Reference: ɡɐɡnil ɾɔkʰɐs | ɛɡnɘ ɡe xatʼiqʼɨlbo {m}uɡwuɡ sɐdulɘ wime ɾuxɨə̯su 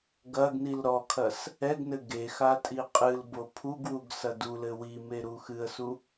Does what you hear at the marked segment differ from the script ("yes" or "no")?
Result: yes